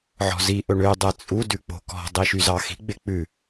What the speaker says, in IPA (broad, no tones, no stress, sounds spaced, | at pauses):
ʕ ɔ̤ z i ʔ ɵ ɳ ø dˤ ɛ t͡sʼ u d ʉ k͡p o̤ k ɔ̤ dˤ i ʃ y z ɑ x i̤ ɡ͡b e k͡p ʉ